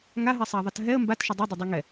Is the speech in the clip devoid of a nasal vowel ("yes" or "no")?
yes